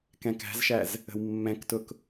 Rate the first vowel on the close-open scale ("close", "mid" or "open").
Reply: mid